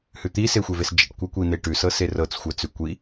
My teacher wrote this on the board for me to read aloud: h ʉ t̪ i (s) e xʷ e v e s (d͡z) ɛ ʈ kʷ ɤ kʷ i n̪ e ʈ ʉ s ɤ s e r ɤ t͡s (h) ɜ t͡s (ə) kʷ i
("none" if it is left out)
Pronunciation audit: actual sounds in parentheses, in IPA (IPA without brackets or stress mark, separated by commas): s, d͡ʒ, xʷ, ʉ